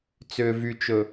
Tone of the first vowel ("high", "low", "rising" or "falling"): low